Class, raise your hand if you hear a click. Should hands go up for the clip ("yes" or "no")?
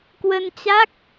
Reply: no